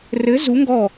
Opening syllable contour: rising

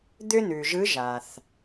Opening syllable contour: high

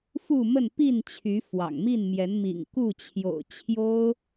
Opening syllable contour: falling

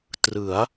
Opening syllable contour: rising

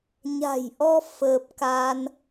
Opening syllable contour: low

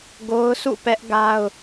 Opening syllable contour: high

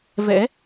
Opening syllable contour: rising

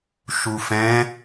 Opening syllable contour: low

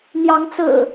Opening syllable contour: rising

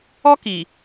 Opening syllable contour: high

